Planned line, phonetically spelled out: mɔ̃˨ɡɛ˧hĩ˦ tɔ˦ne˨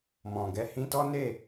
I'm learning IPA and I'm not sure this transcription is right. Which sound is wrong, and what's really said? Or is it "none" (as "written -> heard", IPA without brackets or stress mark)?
e˨ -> e˦˨